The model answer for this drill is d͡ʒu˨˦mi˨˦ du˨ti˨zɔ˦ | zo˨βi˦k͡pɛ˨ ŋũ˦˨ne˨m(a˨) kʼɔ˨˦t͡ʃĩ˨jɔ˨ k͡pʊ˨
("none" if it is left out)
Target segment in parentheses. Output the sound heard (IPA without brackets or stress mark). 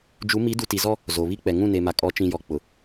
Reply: a˨